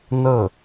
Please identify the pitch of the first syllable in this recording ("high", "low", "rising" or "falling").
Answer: falling